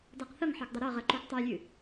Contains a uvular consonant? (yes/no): yes